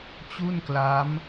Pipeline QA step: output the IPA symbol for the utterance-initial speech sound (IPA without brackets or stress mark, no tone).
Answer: t͡ɕ